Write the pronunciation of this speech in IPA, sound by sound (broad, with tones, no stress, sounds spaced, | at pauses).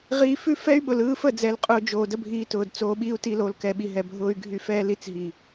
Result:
ʁ iː˧ f ʉ˦ f ɛ˦ y̯ ɓ ʊ˨ l ɯː˧ f ə˦˨ d͡z ɛ˧ l qʼ ʊː˧ d͡ʒ oː˨ d ə˦ bʱ iː˧ t ʊː˨ d t͡s oː˧ ɓ iː˧ u̯ t i˧ l o˨ l k ɛ˨ ɓ i˨ ɦ ɛ˨ bʱ ʊː˧ y̯ ɡʱ y˧ f ɛː˦ l i˦ t͡s ɦ i˨